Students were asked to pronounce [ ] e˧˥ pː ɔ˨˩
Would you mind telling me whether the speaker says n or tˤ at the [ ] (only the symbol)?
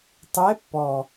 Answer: tˤ